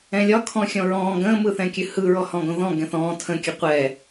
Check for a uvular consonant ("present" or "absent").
present